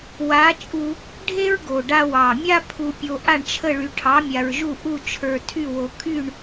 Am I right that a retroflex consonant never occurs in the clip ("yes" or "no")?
no